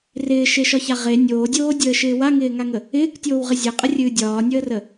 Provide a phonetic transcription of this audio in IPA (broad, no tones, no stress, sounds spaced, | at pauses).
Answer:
r ɪː ʃ e ʃ ɒ ç a ʁ e nʲ oː dʲ oː dʲ əː ʃ ɪː w a ŋ ɪː ŋ a ŋ ə | ɪː k tʲ oː w ʁ ɪ zʲ e qʼ ə rʲ ɨː dʲ ɒː nʲ əː r ə